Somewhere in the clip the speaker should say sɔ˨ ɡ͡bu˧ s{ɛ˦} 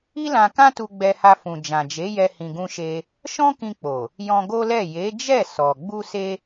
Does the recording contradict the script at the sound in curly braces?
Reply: yes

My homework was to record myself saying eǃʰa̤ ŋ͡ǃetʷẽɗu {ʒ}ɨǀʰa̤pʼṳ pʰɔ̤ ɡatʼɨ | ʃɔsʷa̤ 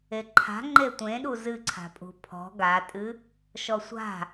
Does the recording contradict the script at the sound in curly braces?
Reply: yes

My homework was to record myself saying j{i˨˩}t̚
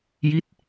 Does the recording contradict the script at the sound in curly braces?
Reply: yes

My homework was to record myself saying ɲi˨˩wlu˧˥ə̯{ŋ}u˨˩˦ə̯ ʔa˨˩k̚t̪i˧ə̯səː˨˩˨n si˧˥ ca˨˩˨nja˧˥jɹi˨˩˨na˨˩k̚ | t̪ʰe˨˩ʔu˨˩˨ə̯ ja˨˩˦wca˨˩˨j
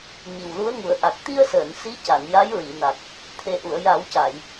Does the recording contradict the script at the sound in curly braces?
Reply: no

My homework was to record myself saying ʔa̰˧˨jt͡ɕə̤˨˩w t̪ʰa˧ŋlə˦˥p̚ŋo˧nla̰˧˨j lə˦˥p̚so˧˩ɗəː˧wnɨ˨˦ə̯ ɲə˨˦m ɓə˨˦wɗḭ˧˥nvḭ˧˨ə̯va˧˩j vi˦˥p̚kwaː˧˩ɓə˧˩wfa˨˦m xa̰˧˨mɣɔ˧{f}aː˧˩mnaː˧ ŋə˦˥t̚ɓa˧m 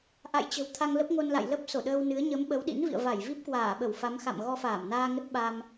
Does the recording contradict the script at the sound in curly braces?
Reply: no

